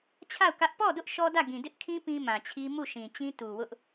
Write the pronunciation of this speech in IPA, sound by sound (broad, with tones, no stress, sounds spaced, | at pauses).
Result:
t͡ɕʰ a˦˨ ʊ̯ k ä˦ ʔ p ɔ˦˨ d ʊ˦ ʔ ʃ ɔ˦ d ä˦˨ ɡ ĩ˨ d ɪ˦ ʔ kʰ ĩ˦ p ĩ˦ m ã˨ t͡ɕʰ i˦ m u˦˨ ʃ ĩ˨ t͡ɕ ĩ˦ t u˨ w ʊ˦ ʔ